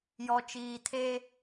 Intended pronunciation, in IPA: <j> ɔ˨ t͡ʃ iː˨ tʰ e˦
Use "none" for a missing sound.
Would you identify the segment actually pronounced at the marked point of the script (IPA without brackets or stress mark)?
j